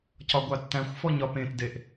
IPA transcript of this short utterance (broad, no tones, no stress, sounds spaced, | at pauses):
c ɒ ɡʷ a tː æ̃ xʷ f ɔ ɲ ɒ p ẽ t d e ʔ